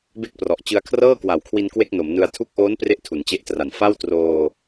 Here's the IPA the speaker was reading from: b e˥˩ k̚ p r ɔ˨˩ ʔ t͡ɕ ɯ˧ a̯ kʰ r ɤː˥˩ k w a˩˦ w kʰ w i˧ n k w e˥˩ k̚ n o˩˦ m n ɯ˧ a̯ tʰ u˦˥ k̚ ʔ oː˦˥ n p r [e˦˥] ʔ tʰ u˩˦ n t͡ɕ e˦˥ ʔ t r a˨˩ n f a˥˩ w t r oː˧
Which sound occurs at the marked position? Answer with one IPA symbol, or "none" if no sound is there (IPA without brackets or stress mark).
e˥˩